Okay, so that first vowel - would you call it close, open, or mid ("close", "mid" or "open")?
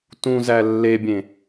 close